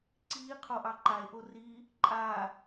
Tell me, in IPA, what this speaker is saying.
ǀiː qʰoʔɑǃae̯ ʔori | ǃʼa

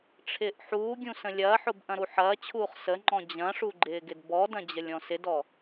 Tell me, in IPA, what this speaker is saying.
ʈ͡ʂʰɪːʔħuːɡʲũ sə̃lʲɐːħʊb ʔɐ̃ɾuħɐːt͡ɕʰuːχ səŋ͡ǃɔ̃ d͡ʑɐ̃ʂu ɡ͡ǃɪːɡɪdbɔdɐ̃ d͡ʑəlʲɔ̃sɪdɔ

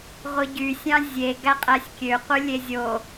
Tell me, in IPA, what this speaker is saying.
ʁʷɯɟysʲɑ̃ zʲe ɡæqʼæsʲkʲøqʷɯ lʲezʲo

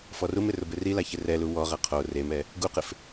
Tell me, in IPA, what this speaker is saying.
fɔrumɪ rʊbɪrila çɪrɛlu wɔʁɛ qʰo remɛ | ɡuqɪf

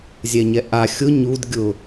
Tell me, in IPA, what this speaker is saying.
zʲɛɲɛʔa xʲʊ ɲud ɡʲʊ

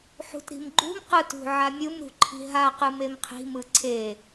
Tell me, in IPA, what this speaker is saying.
ħṳtɾi̤mɡ͡ǃṳm qɯtṳʕamʲɯm ɾṳǃʰi̤ɦa qɯmemqʰi̤ mɯǀʰe

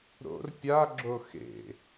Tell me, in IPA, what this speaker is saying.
ɾo̰r pʲaɡ͡ǁo xḛ

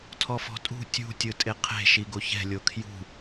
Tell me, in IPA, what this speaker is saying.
tʰɔfɔ̤tʼṳ tʲṳ tʲɯtʼeqʰe̤ ʃiɡoçɛ̤ lʲokʰjṳ

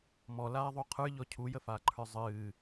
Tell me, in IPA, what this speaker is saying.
mɔlaːðˤo qʰə˞ʎɔ cʰujəfaːǃʰə˞ zˤɨː

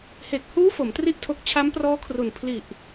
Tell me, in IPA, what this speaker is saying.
he˨˩k̚huː˦˥ fo˩˦mtri˥˩ʔtʰo˦˥k̚ t͡ɕʰa˦˥mprɔː˦˥kʰru˨˩n pʰli˨˩ʔ

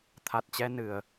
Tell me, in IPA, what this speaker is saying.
t̪ʰa˨˩t̚t͡ɕɛ˧nɨ˨˩ə̯

